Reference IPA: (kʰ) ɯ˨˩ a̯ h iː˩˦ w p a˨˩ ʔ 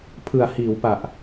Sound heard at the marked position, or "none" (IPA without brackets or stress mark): pʰ